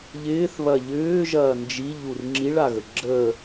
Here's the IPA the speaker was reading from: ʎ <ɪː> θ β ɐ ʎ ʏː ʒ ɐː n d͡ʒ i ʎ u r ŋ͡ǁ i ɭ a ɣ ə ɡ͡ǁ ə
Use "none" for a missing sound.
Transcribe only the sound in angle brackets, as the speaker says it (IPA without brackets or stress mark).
ɪː